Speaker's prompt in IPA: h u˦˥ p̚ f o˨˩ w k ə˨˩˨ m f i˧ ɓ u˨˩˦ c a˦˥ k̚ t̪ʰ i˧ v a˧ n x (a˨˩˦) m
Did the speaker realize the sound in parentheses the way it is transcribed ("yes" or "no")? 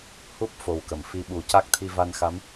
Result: no